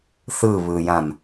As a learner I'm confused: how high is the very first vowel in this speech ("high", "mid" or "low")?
high